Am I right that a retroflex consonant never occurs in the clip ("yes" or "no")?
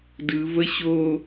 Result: yes